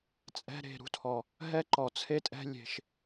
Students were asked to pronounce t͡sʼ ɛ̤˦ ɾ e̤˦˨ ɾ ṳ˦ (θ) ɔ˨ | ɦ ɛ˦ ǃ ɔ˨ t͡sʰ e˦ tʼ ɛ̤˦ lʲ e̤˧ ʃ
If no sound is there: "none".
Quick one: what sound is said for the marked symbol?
tʰ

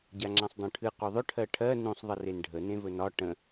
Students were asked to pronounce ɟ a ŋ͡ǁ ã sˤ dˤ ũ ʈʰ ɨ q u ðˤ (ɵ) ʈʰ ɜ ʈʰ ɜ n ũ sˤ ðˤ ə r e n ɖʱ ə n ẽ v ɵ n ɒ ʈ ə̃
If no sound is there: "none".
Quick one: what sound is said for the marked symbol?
ɵ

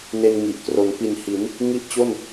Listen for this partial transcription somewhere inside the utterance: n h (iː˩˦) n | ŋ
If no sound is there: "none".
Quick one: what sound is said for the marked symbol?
i˩˦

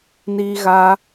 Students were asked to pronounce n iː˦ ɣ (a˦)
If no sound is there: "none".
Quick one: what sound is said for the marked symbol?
a˦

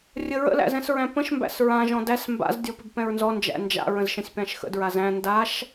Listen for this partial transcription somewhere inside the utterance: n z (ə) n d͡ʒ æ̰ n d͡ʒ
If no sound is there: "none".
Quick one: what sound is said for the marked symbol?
ɔ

